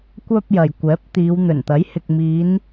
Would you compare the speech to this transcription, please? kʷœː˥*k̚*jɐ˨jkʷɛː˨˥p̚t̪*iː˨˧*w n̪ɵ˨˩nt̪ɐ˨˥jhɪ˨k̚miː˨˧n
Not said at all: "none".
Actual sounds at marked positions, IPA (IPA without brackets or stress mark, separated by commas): p̚, iː˨˧